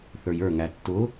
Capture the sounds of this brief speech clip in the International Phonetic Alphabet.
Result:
θ ə˞ j ə˞ ŋ æ tː ʊ

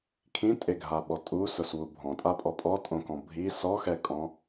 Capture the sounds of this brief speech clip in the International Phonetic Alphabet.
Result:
kʰ ĩ tʼ e ɡʱ a ɓ ɔ tʼ u s ʊ s w u bʱ ɔ̃ tʼ a pʼ ɔ pʼ ɔ tʼ õ k ɔ̃ bʱ i s ɔ x ɛ kʼ ɔ̃

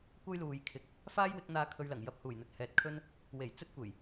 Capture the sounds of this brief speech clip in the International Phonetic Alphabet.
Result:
kʷ ɐ˥ j l uː˨ j kʰ ɪ˨˥ k̚ | f aː˥ j w ɪ˨˥ k̚ n̪ aː˧ kʰ ɵ˧ ɥ l ɐ˨˩ ŋ j ɐ˧ p̚ h uː˨˩ j n̪ ɵ˨ t̚ h ɛː˨ t̚ kʰ ɵ˥ n | w e˨˩ j t͡s ɵ˥ t̚ kʷ e˨˩ j

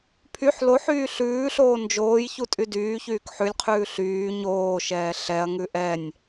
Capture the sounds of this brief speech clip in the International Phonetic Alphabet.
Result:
pʰ y ħ l o ħ yː ɬ ʉː ɬ oː n d͡ʒ oː j ç u tʼ y d yː ç yː k ħ ʉ lʲ qʰ ʉː ɬ yː ɲ oː ʃ ɛː ɬ ɛ ɐ̯ ŋ ʉ ʔ ɛ nʲ

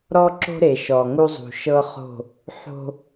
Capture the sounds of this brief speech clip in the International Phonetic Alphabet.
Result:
ɾ ɔ˦ ǁ o̤˦ ɾ e˨ ʃ ɔ˨ ŋ u˦ zˤ ṳ˨ ʃ ɤ˦ χ o̤˦˨ | ħ o̤˦

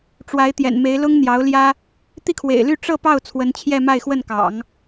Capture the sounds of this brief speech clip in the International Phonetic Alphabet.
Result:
ʈ͡ʂ w a˧˥ ɪ̯ t̪ j ɛ̰˨˩ n m e˧˥ ɪ̯ l ʊ˥ ŋ n̪ j ɑ˧˥ ʊ̯ l j ä˥ | t̪ i˥˩ kʰ w ḛ˨˩ ɪ̯ l y˥˧ ʈ͡ʂ ɤ˥˧ p ɑ˥˩ ʊ̯ t͡sʰ w ə˧˥ n t͡ɕʰ j ɛ˥˧ m a˥˧ ɪ̯ x w ə˥˩ n k ɑ̰˨˩˦ ŋ

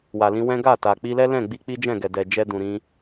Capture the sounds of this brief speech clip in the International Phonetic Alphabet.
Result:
w a˨ l ĩ˧ w ɛ̃˦ ɡ a˦˨ t a˨ k͡p i˧ l ɛ˦ l ɛ̃˦˨ ɡ͡b i˧ k͡p i˦ d͡ʒ ɛ̃˦˨ ɡ ɛ˨ d ɛ˨ d͡ʒ ɛ˧ d ũ˨ ɾ ĩ˧

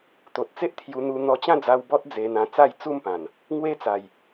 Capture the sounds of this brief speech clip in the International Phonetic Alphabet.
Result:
t̪ o˨ t̚ t͡s e˦ ʔ t̪ʰ j u˧ n̪ u˧ n̪ ɔ˧ t͡ɕ ã˥˧ d͡z a˧ w b ɔ˦ t̚ d͡z e˧ n̪ ã˧ t͡s a˥˧ j t͡s u˥˧ m p ã˨˩ n | ŋ w e˦ t͡s a˨˩ j

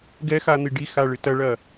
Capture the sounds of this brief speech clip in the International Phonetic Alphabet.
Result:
ɡ ɛ x a n̪ i ɖ i x a ɭ ɨ t ɐ ɭ ɐ

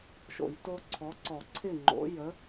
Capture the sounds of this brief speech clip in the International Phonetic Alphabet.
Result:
ʃ o̰˧˩˧ j t o˦ ǀʰ ɔ˩˥ ǀ ɔ˧˩˧ ǀʰ ɪ˥˩ ŋ͡ǃ o̰˩˥ j ə˩˥

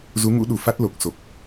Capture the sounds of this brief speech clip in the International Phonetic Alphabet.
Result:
z u˨˦ ŋ ṵ˧˥ ɗ u˧˩ f a˦˥ t̚ l o˨˩ k̚ s o˨˩ k̚

